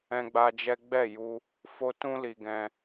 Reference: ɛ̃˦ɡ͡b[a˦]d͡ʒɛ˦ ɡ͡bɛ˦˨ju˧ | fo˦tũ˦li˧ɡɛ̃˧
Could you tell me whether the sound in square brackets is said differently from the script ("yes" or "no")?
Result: no